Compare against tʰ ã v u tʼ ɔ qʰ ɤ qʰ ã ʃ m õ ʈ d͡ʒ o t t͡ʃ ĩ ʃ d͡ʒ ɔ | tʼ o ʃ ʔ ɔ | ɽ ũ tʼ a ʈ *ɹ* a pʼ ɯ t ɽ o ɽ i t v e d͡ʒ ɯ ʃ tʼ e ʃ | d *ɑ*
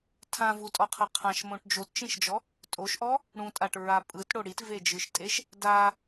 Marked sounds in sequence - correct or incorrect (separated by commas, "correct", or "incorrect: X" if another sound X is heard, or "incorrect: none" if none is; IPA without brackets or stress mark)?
correct, incorrect: a